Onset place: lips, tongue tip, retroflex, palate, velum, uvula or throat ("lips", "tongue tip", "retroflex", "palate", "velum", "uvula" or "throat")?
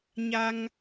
palate